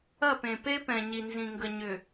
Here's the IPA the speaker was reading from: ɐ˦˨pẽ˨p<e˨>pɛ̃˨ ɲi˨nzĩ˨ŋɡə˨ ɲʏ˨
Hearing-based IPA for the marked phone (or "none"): e˦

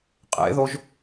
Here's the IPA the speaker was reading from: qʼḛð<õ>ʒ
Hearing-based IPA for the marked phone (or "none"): o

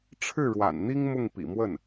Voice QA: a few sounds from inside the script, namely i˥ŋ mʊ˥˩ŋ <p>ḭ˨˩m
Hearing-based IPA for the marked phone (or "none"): p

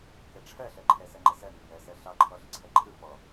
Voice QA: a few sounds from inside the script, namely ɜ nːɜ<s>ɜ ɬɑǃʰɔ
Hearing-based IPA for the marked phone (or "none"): s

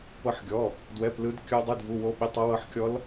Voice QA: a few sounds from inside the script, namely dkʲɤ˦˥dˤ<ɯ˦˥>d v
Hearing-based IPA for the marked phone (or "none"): ɯ˧˥˧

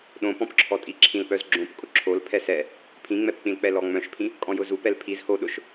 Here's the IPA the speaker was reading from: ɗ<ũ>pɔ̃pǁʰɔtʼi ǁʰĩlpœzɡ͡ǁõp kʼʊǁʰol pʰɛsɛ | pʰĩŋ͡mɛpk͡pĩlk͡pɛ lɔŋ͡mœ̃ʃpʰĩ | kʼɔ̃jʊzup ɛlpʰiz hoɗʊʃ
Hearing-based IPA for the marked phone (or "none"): õ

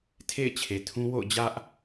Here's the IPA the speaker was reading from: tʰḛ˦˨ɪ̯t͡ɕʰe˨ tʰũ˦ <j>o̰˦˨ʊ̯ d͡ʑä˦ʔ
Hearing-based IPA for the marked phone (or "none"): w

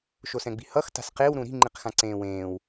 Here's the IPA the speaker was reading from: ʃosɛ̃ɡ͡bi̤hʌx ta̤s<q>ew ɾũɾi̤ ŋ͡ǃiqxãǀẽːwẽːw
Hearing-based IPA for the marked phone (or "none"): q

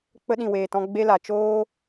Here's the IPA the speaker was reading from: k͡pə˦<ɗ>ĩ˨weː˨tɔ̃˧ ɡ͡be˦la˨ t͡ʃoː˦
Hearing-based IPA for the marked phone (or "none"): ɗ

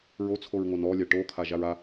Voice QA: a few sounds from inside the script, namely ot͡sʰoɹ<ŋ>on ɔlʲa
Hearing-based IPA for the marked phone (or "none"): ŋ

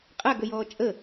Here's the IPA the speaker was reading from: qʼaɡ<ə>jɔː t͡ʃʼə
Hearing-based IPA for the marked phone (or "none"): ə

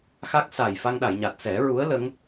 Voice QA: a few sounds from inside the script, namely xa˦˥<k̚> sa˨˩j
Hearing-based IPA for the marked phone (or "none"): k̚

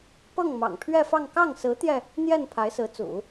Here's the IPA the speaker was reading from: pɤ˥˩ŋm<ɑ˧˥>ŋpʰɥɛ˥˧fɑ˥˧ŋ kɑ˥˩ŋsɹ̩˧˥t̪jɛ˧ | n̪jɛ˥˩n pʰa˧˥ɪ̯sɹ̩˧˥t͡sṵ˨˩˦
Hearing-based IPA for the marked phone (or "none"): ɑ̰˨˩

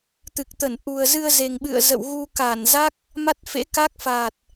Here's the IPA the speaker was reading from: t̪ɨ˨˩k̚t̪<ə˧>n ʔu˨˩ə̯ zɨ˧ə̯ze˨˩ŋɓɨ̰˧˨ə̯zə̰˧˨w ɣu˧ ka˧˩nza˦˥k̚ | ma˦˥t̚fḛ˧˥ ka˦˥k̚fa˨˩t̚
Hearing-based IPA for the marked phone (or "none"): ə˧˩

